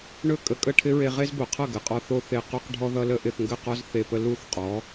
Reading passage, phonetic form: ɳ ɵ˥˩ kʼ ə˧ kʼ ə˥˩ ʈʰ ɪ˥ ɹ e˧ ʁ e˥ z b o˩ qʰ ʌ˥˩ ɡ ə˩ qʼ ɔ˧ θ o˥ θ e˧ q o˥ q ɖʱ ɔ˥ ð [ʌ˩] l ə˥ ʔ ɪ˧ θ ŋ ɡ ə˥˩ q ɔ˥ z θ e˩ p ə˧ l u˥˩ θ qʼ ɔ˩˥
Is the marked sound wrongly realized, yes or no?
yes